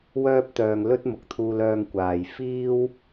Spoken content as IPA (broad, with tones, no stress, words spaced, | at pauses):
wœː˥p̚t̪œː˧ŋlɵ˥t̚ mʊ˨k̚t̪ʰuː˧lœː˧ŋ kʷaː˨jfiː˥w